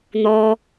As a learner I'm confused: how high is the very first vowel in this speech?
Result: mid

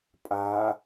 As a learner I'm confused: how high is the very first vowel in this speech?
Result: low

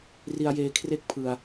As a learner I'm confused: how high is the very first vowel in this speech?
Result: high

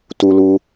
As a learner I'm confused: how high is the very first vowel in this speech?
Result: high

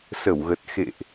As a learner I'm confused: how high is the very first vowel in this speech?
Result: mid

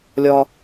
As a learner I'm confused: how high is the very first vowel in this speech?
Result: low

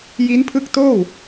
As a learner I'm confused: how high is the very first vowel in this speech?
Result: high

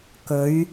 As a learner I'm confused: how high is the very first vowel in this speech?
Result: mid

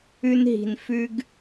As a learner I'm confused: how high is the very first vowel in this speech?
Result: high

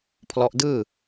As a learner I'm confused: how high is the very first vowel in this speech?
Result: mid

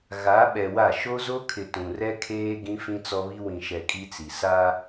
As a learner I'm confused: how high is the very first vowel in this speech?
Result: low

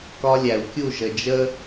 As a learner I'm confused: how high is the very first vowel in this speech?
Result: low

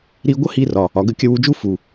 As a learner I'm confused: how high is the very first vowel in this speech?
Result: high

